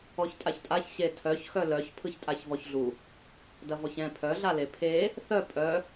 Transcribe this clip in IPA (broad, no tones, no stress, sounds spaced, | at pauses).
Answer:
ɔ ç tʼ a ç tʼ a ç ɕ e tʰ œ ç x œ l œ ç pʰ ɯ ç tʼ a ç v ɔ ç ɮ u | d ɐ v ɔ ç ɛ̃ pʰ œ ɮ a l e pʰ e | θ œ pʼ œ